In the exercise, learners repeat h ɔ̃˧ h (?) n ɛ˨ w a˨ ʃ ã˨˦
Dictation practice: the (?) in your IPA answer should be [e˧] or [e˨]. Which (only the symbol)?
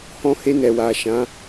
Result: e˧